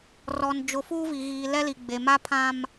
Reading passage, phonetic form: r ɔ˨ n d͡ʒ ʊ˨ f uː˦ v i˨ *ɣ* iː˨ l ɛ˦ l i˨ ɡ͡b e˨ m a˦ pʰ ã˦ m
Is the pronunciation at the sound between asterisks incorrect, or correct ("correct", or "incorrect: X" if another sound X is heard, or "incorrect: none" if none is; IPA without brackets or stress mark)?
correct